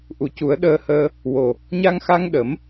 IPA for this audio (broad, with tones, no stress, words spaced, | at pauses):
ʔu˨˩cu˨˩˦ə̯ ɗəː˧həː˧ | wo˨˩ | ɲa˧ŋxa˧ŋ ɗə˨˩˦m